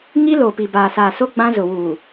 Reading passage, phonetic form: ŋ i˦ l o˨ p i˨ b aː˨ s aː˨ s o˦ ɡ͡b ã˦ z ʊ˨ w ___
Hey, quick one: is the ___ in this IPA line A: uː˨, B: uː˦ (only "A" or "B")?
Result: A